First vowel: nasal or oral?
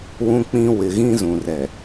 nasal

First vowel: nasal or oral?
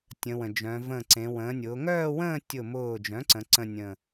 nasal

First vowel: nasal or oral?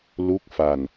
oral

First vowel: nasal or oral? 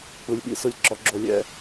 oral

